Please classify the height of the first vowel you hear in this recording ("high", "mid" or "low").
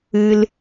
high